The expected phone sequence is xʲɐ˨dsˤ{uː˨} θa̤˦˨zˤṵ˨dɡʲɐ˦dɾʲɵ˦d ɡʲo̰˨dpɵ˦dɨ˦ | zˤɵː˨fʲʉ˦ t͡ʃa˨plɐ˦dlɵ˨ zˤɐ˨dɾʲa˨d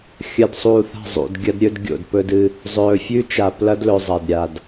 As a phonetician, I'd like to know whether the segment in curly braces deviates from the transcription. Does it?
no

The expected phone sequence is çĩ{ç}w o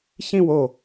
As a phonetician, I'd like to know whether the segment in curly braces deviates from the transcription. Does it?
yes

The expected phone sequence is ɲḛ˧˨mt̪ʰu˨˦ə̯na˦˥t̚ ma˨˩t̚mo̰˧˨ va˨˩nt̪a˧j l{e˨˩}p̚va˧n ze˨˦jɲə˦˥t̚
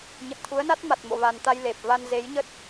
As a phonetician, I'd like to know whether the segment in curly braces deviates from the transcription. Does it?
no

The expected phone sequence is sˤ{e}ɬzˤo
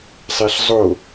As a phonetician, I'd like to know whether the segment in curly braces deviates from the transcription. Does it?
no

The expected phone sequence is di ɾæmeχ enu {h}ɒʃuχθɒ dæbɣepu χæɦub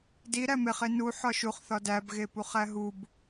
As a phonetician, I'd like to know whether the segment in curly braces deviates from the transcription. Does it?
yes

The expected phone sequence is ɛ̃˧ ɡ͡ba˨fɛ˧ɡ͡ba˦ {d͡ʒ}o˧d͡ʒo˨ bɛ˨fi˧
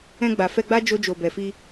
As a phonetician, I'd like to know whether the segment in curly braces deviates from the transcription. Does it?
no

